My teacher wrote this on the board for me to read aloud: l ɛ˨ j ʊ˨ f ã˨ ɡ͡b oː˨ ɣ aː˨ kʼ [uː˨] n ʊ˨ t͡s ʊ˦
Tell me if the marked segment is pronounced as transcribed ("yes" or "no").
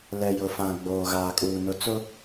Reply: yes